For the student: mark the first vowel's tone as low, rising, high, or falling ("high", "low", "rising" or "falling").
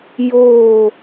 falling